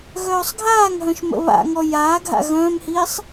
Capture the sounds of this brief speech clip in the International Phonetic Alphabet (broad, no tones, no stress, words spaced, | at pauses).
ɣœːsˤɡʱaːŋɦœ̃ʃ mə̰βa̰ŋɔ jaːɡʱa̰ ɣœ̃ːmhiːsˤ